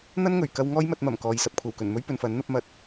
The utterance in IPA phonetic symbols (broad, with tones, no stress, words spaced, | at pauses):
n̪ɐ˥nŋɵ˨˩ɥkɐ˧w ŋɔː˥jmɐ˧t̚mɐ˨˩m kɔː˨jsɐ˨p̚kʷʰɐ˨˩wkɵ˨˩n mɵ˥ɥ pɵ˨nfɐ˨˥n n̪ɐ˧p̚mɐ˨˥t̚